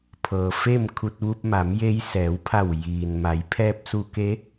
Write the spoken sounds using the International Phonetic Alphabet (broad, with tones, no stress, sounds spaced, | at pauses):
pʰ ɤː˩ f e˥˨ m kʰ u˧ t̚ ʋ u˧ p̚ m a˩˧ m j e˧ j s ɛː˩˧ w pʰ a˧˩ w j iː˩ n m a˩˧ j pʰ ɛː˧ p̚ s u˧ k e˧˥